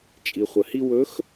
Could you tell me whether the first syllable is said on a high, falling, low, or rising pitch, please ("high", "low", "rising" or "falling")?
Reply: low